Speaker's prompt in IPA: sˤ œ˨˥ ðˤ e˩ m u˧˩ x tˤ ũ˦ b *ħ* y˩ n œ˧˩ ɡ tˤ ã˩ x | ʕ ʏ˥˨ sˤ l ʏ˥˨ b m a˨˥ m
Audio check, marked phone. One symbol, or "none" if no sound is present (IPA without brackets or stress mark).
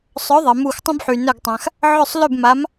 ħ